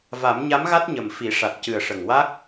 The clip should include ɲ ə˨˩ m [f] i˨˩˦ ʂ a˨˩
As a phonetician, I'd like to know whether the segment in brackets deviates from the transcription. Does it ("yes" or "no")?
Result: no